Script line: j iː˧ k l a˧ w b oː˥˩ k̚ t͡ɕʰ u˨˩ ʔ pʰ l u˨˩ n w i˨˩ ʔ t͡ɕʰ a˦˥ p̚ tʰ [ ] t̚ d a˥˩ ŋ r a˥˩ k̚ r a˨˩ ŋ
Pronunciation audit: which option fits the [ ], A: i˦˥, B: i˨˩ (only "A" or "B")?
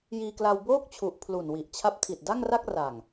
B